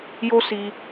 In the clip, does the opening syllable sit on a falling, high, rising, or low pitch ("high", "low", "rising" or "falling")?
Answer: high